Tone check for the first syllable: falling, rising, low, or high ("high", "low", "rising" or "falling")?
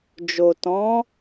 low